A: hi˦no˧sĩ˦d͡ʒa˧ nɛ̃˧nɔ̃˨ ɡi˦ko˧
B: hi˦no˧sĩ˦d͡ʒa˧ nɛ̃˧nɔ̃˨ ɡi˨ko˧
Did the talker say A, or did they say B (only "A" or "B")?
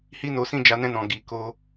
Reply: B